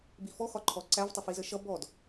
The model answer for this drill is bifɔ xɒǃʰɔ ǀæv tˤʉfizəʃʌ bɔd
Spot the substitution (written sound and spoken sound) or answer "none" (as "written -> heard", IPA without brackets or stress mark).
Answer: ʉ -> ə